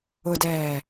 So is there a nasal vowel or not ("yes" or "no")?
no